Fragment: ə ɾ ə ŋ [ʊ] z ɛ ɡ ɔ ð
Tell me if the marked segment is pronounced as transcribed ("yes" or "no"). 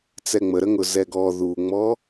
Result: yes